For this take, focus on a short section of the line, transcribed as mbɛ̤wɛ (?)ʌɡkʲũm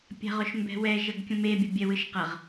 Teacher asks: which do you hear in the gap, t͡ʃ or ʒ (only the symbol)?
ʒ